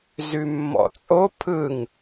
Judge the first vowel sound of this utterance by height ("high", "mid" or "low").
high